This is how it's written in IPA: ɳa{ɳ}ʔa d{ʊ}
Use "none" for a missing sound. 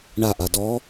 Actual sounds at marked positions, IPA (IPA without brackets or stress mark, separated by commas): none, ɔ